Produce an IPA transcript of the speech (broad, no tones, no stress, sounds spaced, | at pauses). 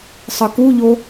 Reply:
sˤ ɯ k u ʎ o